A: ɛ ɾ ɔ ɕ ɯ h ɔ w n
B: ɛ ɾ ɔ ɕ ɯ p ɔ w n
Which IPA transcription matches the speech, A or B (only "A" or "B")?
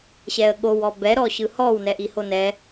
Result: A